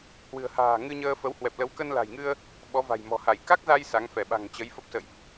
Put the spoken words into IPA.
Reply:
h w ɨ̤˨˩ ə̯ h a̤ː˨˩ ŋ ɨ˧ ɲ əː˧ f ə˨˦ w h w ɛ˨˩ p̚ l ə˨˦ w k ə˧ n l a̤˨˩ j ŋ ɨ˧ ə̯ | ɓ ɔ˨˦ v a̤˨˩ j m ɔ̤˨˩ h a˧˩ j k a˦˥ k̚ z a˧ j s a˨˦ ŋ f ɛ˧˩ ɓ a̤˨˩ ŋ t͡ɕ ə˨˦ j f ə˦˥ p̚ s ə̰˧˨ j ʔ

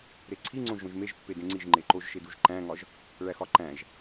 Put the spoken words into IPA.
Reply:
ɾ e ǀʰ i ŋ͡ǀ õ ʒ õ ʒ m e ʒ pː e d ẽ ŋ͡ǀ i ʒ ŋ͡ǃ e ǃ o ʒ ʃ e d u ʒ ǃ æ̃ ŋ ɒ ʒ | ɭ æ x ɒ ǃ æ̃ ʒ

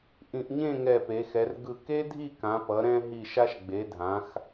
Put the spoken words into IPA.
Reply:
ʔ ĩ˧˩ ʔ ɲ ẽ˥˧ ŋ ɛ˧˩ p e˩˧ x ɛ˩˧ r ɡ ɯ˧˩ k e˥ dʱ i˥˧ k ã˩˧ p ʌ˩˧ ɾ ɛ̃˧ ɦ i˧˩ ʃ a˧ ʃ ɡ͡b e˩˧ dʱ ã˩˧ x

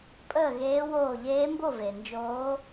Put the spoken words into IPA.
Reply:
pʼ əː˥˨ ɣ eː˧˥ w oː˥˨ ʎ eː˧˥ m b o˥˨ v e˨ n d͡ʒ oː˧˥

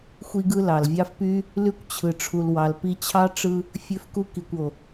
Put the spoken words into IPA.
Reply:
xʷ i˥ ɡ ɯ˥ l ɑ˩ l vʲ ɑ˦ f p y˦ | l y˥ kʷ t͡ɕʰ ɯ˨ ʈ͡ʂʰ u˨ l w ɑ˨ l p i˦ t͡ɕʰ ɑ˥ ʈ͡ʂ ɯ˦ | fʲ ø˦ f k u˦ k i˨ kʷ o˩

